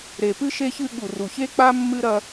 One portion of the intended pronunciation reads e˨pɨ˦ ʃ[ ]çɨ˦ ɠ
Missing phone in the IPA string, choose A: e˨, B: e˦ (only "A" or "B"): B